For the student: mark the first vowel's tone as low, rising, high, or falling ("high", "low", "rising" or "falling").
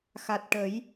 low